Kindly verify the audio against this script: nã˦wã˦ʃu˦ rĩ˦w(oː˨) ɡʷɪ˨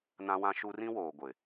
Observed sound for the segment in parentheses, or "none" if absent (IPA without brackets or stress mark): oː˨